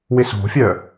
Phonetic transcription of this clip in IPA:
w ɪ s o̤ fʲ œ

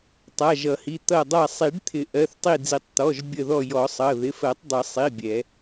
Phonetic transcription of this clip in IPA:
tˤ a˩˧˩ ʒ ʌ˨˩˦ h i˩˧˩ t̪ ʌ˧˩ dˤ a˧˩ sˤ i˨˩˦ ɖ t̪ʰ ɪ˨˩˦ ʔ ɜ˩˧˩ θ tˤ i˧˩ d͡z i˨˩˦ tˤ t̪ ɔ˩˧˩ ʒ bʲ ə˧˩ ð ɔ˧˩ j ɔ˨˩˦ sˤ ʌ˩˧˩ ð ɪ˩˧˩ f ɜ˨˩˦ tˤ dˤ ə˨˩˦ sˤ i˩˧˩ bʲ ɛ˨˩˦

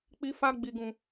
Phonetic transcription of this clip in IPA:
k͡p i˧ f a˧ ɡ͡b i˨ ɡ ũ˨

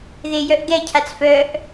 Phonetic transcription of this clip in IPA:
ð e j œ ʔ ɡ ɛ cʰ a t͡s f œ ʔ

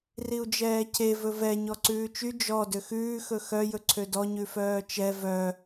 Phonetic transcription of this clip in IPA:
r i u̯ d͡ʒ ɛː cʰ e v ɵ v ɛ ɲ ɔ ǀ ʉː t͡ʃ y d͡ʒ ɔ d ø x ʉː x ɵ x œ j ɵ ǀʰ ø d ɔ ɲ ʉ f œː t͡ʃ ɛ v œ

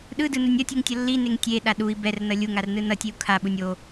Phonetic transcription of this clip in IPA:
ɗ ɯ d ɯ n u nʲ ʌ tʲ ɯ ŋ tʲ ʌ lː i n e ŋ tʲ e ɗ a ɗ u i̯ b ɛ r n ʌ lʲ u ŋ a r n ɯ n ʌ tʲ e u̯ kʰ a ɓ u nʲ o

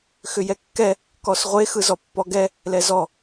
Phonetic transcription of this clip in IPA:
x ʏ j ɛ kː ɛ | k ɔ s ʁʷ e x ɯ z ɔ pː ɔ ɡ ɛ | l ɛ z ɔ

